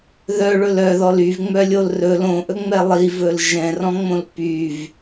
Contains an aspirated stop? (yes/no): no